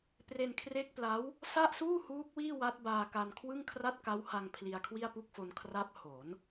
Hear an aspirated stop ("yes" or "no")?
yes